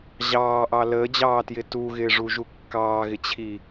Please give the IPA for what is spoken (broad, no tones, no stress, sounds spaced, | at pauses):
ʑ ɑː ʔ ɑ l əː d͡ʑ ɑː t j ɪ t u ɣ ɪː ʐ u ʒ u kː ɑː ɣ ɪ t͡ɕʰ i